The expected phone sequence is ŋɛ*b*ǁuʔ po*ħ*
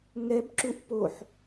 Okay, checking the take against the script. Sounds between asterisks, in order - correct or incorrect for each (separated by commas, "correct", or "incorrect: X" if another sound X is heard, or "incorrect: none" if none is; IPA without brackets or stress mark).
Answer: correct, correct